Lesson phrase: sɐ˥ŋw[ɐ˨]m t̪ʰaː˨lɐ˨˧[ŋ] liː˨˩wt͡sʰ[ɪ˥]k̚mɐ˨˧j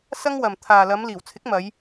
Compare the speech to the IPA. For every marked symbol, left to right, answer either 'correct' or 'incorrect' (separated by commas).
correct, incorrect, incorrect